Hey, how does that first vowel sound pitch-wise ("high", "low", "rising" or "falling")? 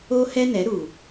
high